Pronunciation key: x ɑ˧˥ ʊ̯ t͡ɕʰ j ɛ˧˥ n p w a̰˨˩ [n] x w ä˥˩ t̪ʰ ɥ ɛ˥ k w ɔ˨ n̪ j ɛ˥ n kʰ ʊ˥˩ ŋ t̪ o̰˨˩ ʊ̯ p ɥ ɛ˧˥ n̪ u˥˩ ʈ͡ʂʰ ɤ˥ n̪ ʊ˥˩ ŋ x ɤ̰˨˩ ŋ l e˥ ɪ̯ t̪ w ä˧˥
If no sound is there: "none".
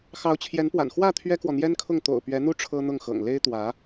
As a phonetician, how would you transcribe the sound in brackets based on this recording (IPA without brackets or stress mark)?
n